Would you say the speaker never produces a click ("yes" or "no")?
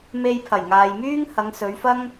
yes